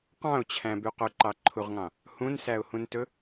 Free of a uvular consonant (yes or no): no